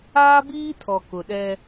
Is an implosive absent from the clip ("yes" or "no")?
no